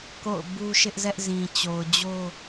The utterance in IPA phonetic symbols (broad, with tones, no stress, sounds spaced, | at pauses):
k o̰˦˨ ʊ̯ b u˦ ʃ ɪ˦ ʔ z ɛ˦ ʔ z ĩ˨ t͡ɕ o˨ ʊ̯ d͡ʑ o˦